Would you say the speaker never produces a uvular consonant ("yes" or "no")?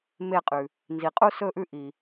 no